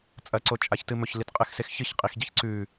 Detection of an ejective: present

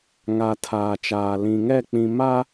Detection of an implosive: absent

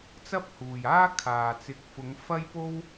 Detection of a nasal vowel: absent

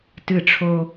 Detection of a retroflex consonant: present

